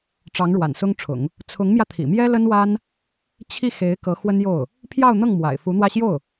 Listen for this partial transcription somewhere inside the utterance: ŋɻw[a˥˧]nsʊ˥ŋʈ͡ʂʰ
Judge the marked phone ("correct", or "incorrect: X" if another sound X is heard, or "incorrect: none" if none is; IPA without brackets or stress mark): incorrect: a̰˨˩